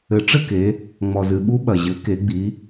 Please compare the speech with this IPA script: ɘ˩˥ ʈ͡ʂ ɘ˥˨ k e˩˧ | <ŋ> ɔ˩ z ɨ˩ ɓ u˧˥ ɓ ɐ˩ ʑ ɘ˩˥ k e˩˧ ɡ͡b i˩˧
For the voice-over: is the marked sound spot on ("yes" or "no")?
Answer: no